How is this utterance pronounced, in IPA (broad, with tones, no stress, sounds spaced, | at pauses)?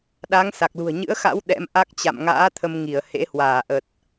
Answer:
ɗ a˨˦ ŋ s a˨˩ k̚ l ṳ˨˩ ə̯ ɲ ɨ̰˧˥ ə̯ x a̰˧˥ w ɗ ɛ̰˧˥ m ʔ a˦˥ k̚ t͡ɕ a̰˧˨ m ŋ a̰ː˧˥ t̪ʰ ə˧ m ŋ i˧˩ ə̯ h ḛ˧˥ h w aː˧˩ ʔ ə˨˩ t̚